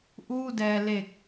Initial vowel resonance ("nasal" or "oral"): oral